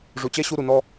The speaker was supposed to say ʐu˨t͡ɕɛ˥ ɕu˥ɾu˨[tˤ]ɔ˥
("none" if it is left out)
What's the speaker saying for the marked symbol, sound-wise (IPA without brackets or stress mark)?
n